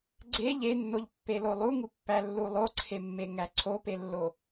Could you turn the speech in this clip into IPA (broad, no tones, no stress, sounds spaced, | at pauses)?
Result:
ɡ͡ǀ e ʎ e nː o ʎ pː e l o lˠ u ŋ u pː æ lː u lˠ o ǀʰ e mː e ŋ æ ǀʰ o p e lː o